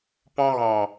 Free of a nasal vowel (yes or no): no